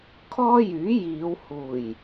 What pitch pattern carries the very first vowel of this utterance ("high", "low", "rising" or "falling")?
high